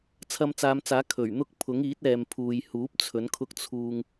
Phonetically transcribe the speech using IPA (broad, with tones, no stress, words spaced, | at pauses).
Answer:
t͡sʰɐ˧mt͡saː˨˧mt͡saː˨˥ kʰɵ˨˩ɥ n̪ʊ˥k̚ pʰʊ˨˥ŋiː˨˥t̚ɛː˨m pʰuː˨jhuː˨˥p̚ t͡sʰɵ˨˥nkʰʊ˥k̚ t͡sʰuː˧ŋ